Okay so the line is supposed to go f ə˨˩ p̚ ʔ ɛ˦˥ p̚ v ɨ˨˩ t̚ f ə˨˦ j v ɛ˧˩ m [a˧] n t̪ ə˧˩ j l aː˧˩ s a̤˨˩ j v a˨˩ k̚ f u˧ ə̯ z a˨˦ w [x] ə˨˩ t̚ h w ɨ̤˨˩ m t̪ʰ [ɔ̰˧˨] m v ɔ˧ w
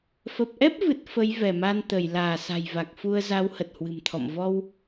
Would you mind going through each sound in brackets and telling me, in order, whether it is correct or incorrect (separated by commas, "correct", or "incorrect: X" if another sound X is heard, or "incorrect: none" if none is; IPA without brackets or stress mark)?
correct, incorrect: h, correct